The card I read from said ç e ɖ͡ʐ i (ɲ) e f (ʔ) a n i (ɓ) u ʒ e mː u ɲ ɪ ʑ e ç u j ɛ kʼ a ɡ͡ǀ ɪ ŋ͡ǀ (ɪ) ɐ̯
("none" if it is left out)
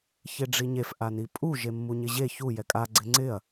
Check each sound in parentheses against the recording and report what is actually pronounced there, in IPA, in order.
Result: ɲ, ʔ, pʼ, ɪ

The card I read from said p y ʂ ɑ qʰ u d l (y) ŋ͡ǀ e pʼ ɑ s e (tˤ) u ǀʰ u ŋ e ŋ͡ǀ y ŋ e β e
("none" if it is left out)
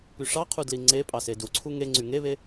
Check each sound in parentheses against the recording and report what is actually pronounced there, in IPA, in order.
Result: i, d

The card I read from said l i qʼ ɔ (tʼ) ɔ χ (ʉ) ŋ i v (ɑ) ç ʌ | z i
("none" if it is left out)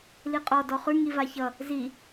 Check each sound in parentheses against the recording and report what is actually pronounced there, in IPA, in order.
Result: d, ʉ, a

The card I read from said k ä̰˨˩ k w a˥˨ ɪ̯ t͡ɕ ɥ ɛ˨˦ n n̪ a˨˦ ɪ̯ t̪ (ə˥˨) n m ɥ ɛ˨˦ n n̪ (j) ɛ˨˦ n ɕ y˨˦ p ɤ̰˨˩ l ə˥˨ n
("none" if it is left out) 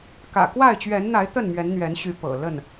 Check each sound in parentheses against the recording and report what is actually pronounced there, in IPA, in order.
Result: ə˥˨, ɥ

